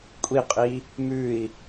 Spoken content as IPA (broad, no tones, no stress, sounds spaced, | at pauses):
kʷʼ i qʼ i | m ʉ i̯